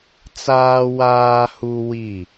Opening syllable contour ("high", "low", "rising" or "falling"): low